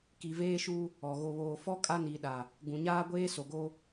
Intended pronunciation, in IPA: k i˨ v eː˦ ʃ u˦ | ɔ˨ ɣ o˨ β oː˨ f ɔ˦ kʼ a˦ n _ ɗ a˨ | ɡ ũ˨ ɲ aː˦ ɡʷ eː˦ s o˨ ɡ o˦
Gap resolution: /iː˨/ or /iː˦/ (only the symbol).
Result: iː˨